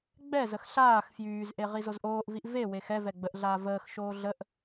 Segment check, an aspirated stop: absent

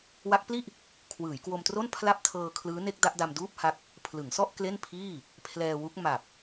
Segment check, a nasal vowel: absent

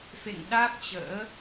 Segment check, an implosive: present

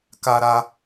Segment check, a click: absent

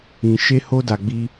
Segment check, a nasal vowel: present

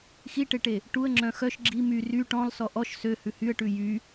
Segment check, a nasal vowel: present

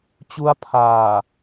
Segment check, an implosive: absent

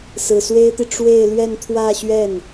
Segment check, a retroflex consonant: present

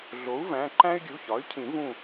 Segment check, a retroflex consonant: absent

